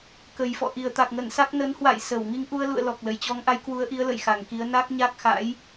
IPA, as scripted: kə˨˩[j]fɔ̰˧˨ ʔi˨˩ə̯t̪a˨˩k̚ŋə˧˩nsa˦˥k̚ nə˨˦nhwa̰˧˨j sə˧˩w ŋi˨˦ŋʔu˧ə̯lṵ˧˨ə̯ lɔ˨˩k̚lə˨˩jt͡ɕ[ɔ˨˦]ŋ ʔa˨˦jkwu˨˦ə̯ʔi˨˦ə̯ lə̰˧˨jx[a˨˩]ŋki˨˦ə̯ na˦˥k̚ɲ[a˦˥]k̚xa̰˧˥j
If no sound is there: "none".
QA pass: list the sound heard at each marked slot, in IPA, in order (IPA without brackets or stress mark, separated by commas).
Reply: j, ɔ˨˦, a˨˩, a˦˥